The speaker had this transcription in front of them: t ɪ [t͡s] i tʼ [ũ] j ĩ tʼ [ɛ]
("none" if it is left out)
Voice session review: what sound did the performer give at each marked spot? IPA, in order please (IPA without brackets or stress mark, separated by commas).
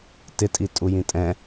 tʼ, u, ɛ̃